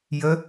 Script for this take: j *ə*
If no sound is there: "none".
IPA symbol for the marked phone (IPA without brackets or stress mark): ə